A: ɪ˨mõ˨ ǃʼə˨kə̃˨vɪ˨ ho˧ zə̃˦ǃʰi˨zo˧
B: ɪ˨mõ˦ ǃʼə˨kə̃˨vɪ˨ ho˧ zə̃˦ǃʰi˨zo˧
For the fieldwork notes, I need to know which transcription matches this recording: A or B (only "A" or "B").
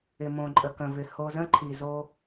A